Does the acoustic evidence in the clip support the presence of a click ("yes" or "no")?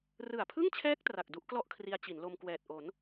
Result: no